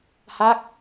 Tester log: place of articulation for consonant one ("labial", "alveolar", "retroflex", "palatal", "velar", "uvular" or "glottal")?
glottal